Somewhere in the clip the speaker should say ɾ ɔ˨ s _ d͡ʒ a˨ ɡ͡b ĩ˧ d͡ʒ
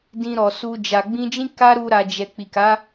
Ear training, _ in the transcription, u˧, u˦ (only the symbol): u˧